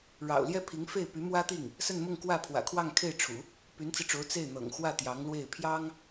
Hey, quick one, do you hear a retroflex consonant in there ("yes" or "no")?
yes